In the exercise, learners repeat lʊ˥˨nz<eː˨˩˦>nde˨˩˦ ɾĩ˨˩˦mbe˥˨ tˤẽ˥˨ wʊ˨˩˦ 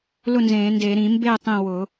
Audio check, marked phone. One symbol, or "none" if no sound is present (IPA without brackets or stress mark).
ẽː˨˩˦